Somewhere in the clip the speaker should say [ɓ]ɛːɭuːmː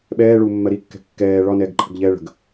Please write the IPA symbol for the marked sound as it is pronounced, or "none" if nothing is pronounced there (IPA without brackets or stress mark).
ɓ